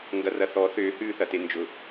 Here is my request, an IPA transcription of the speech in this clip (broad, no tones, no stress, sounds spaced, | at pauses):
ŋ ɡ ɐ r ɐ θ ɔ θ ʏː h ʉː θ ɐ t e n d͡ʒ ʊ